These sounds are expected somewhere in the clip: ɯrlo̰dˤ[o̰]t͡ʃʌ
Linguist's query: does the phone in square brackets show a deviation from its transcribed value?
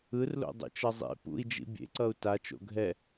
yes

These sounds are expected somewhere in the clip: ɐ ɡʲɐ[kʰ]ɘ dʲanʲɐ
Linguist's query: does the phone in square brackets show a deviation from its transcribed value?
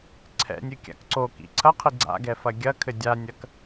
no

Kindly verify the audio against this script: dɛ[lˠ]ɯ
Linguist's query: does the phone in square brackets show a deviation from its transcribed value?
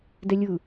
yes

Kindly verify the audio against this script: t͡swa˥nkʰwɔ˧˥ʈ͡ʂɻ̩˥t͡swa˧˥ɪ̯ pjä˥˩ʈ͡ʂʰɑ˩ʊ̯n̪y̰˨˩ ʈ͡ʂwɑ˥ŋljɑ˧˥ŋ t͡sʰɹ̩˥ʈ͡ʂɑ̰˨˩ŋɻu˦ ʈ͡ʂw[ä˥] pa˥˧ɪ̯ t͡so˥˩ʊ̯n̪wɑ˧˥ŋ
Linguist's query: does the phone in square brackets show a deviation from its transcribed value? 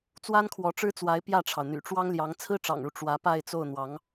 yes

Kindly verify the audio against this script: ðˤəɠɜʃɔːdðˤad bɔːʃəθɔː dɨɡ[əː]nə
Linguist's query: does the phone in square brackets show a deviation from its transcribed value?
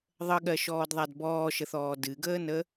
no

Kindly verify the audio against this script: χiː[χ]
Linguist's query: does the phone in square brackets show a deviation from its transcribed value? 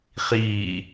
yes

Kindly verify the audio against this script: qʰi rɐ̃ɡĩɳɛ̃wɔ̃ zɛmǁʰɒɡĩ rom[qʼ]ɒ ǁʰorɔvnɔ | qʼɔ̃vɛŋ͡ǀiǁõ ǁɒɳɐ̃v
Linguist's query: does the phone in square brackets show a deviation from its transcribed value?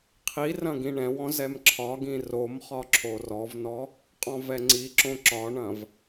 yes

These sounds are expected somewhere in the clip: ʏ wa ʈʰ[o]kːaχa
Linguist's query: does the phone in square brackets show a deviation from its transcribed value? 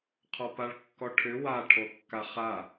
no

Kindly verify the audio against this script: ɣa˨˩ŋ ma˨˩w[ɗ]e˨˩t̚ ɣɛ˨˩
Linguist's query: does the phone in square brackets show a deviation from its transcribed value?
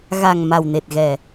yes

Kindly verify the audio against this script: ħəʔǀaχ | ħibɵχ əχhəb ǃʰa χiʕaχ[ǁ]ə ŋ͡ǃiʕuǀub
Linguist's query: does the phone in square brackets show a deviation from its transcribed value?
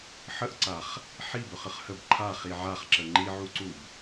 no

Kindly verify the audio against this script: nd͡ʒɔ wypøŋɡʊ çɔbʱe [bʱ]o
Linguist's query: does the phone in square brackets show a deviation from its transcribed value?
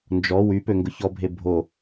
no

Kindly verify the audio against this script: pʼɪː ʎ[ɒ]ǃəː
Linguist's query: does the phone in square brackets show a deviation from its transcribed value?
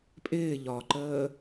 no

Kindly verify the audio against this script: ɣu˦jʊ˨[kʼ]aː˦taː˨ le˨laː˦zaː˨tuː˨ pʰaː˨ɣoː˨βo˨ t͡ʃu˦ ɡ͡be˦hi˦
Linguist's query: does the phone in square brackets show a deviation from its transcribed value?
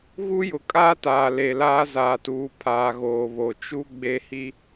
no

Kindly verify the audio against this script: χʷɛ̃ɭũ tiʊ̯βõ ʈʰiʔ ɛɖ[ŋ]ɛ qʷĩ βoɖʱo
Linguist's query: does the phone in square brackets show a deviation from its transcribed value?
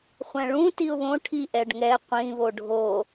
no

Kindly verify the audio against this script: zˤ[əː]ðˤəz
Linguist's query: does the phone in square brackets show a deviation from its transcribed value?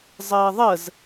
no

